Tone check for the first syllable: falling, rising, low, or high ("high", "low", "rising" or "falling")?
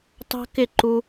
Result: high